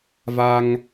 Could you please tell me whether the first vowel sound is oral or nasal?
oral